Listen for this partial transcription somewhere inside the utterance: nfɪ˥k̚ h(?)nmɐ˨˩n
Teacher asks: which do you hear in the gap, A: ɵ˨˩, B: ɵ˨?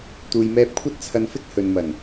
B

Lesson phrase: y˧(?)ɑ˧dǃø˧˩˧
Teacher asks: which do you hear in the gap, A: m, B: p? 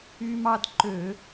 A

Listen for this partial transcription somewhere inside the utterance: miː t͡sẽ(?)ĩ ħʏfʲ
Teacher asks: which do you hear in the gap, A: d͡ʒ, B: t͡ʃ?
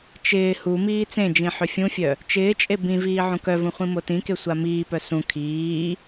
A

